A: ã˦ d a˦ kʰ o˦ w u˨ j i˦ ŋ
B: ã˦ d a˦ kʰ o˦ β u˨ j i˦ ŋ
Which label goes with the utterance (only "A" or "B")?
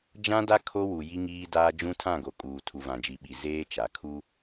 A